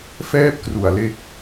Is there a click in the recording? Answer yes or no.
no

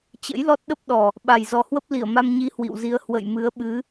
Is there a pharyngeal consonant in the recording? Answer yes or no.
no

